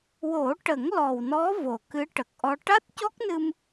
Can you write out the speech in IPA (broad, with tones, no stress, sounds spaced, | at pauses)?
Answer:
w o˨˩˦ ʈ ə˨˩˦ ŋ l ɔ˨˩ w n ɔ˧˥ v o˨˩ k ɨ˧˥ ʈ ə˨˩ k̚ ʔ ɔ˧ ʈ a˦˥ t̚ c ɔ˦˥ k̚ n ɨ˧ m